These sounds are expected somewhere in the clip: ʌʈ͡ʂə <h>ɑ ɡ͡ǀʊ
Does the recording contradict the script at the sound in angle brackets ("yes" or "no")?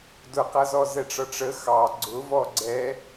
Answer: yes